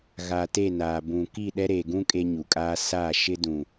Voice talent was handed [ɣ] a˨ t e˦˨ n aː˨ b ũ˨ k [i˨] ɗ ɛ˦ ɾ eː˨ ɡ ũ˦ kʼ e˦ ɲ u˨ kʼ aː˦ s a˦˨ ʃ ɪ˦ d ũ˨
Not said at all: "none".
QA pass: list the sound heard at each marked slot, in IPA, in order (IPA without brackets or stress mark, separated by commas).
ɣ, i˦˨